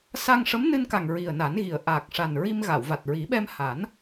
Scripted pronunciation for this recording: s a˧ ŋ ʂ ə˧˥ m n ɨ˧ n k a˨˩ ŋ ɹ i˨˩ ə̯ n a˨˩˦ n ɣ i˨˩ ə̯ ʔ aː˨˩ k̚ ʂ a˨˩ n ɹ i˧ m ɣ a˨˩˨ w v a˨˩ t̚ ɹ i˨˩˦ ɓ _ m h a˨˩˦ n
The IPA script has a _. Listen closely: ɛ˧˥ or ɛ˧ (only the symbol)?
ɛ˧